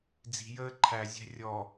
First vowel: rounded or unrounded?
unrounded